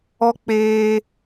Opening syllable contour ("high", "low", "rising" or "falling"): high